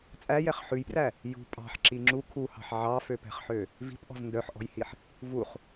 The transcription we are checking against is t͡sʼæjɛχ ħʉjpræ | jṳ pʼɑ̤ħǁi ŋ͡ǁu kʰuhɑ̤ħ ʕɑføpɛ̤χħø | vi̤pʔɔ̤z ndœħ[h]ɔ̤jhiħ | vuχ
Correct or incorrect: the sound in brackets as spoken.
incorrect: ʔ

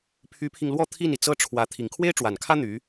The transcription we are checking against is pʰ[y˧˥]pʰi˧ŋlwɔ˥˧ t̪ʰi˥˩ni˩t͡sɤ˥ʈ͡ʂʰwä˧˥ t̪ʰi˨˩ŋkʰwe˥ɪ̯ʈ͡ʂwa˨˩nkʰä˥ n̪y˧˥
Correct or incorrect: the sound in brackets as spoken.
correct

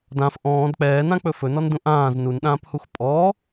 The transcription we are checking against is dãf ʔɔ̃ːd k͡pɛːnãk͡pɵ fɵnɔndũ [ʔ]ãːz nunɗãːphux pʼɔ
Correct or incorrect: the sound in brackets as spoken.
correct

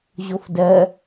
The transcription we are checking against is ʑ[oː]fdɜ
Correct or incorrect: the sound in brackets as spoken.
incorrect: o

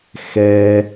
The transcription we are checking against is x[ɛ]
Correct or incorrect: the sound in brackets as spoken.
correct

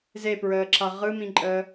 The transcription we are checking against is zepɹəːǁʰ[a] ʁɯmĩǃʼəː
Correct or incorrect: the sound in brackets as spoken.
correct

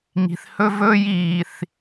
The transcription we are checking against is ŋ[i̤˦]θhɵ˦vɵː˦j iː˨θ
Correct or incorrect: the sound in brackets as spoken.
incorrect: i̤˨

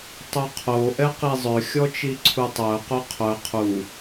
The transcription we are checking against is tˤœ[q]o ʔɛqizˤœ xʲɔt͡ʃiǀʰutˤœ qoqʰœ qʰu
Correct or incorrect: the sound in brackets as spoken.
incorrect: qʰ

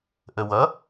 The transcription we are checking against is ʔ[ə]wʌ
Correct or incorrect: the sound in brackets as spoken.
correct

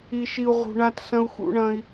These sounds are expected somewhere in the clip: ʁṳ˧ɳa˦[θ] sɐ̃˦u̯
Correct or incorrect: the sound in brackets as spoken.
incorrect: t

